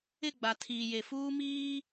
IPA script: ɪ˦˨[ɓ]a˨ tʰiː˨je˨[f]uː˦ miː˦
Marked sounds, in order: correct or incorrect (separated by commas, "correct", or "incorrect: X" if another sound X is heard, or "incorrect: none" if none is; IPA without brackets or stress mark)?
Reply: incorrect: ɡ͡b, correct